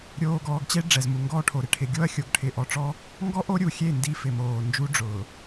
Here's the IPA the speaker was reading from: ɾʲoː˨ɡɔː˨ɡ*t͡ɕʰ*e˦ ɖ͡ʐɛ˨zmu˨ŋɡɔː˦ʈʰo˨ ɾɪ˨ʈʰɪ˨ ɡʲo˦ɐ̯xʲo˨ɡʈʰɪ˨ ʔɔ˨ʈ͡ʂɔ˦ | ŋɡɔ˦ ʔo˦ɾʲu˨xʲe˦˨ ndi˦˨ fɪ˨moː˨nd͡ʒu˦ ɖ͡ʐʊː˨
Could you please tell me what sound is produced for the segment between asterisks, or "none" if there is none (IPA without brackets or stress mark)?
t͡ɕ